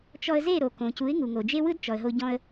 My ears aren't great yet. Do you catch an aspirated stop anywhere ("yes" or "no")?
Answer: no